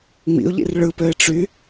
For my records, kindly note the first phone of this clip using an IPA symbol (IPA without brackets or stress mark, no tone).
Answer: ŋ͡m